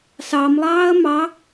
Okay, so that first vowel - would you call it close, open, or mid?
open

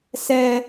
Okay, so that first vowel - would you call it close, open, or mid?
mid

